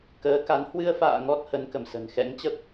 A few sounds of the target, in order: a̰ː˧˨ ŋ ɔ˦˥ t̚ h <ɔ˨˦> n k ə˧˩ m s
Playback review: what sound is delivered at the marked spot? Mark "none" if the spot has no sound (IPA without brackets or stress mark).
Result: ə˨˦